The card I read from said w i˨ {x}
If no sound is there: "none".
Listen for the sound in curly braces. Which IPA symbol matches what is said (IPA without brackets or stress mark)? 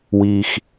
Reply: x